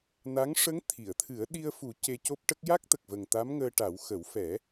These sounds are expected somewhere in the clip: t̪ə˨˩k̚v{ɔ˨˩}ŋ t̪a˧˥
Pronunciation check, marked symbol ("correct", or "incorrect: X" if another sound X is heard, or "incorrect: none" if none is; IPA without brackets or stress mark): incorrect: ə˨˩